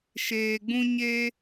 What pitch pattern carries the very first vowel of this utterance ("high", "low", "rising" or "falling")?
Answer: low